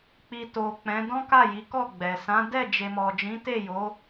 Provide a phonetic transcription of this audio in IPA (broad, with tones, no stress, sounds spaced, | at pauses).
k͡p i˨ t o˨ k͡p ɛ̃˨˦ d ɔ̃˦ k a˦˨ j i˨˦ k ɔ˦˨ ɡ͡b ɛ˨ s ã˨˦ d ɛ˦˨ d͡ʒ e˨ m ɔ˨ d͡ʒ ĩ˨˦ t e˦˨ j o˨˦